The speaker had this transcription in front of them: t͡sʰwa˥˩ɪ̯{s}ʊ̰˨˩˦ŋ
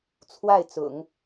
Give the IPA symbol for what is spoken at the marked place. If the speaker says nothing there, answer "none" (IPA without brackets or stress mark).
t͡s